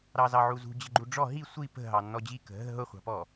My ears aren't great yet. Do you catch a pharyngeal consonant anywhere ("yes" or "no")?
yes